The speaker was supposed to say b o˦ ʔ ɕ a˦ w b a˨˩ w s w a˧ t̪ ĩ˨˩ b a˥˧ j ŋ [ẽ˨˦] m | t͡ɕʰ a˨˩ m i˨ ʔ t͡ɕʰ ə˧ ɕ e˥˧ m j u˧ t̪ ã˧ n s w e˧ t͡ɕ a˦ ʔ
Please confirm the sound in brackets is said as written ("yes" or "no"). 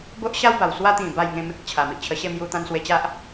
no